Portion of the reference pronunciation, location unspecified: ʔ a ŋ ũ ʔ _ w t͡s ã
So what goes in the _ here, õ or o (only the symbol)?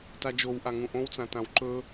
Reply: õ